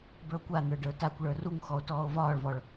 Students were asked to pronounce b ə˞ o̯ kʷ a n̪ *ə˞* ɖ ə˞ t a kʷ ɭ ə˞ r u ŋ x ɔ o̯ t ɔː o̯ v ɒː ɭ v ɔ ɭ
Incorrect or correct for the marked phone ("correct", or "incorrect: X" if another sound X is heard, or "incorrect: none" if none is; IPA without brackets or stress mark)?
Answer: correct